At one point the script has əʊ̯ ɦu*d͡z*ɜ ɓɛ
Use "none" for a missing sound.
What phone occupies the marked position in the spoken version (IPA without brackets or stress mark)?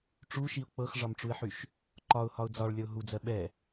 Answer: d͡z